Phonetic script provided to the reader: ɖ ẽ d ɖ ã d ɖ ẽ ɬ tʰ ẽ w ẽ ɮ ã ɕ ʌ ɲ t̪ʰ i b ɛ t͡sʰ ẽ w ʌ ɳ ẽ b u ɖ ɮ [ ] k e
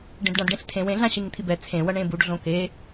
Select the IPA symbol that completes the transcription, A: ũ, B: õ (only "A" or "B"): B